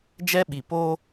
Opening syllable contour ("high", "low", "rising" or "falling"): high